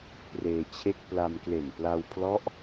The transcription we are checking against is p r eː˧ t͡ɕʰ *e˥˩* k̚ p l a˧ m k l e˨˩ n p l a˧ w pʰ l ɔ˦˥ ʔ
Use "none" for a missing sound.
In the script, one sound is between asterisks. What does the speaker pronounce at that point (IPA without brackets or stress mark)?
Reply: e˥˩